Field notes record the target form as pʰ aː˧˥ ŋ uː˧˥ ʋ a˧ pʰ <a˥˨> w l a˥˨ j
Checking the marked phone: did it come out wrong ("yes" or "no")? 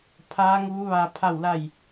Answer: no